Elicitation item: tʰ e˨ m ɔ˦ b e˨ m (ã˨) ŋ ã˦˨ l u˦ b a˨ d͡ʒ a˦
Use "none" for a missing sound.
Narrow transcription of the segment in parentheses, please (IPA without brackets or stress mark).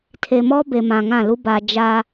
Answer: ã˨